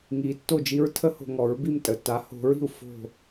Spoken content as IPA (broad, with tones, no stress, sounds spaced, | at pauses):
ŋ i˨˦ tː o˦˨ d͡ʒ i˦ ɹ tʰ ə˦ h o̤˨ ŋ ɔ˨˦ ɹ b i˦˨ m tʼ ə˨ t a˨˦ h o̤˨˦ ɹ i̤˨ u̯ f o̤˦˨